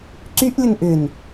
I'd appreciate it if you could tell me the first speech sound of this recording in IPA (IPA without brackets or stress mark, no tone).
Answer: ǀ